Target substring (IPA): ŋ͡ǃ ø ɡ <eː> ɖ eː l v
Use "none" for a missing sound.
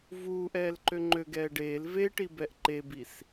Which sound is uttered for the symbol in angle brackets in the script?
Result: ɛː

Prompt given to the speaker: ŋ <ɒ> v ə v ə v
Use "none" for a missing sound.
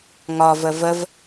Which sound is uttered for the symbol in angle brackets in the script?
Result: ɒ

